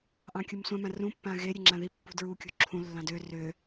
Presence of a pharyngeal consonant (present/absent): absent